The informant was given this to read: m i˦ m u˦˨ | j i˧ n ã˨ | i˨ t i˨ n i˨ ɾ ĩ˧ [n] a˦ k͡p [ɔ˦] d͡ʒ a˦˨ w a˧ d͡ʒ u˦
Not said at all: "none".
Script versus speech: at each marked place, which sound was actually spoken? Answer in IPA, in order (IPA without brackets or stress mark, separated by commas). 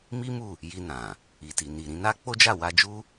n, o˦